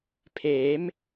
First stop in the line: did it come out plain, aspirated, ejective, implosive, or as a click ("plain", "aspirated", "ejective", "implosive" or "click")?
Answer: aspirated